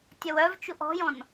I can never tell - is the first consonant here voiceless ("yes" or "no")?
yes